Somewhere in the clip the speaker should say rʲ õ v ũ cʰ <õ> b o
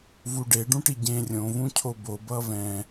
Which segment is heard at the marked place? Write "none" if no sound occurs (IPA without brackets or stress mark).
o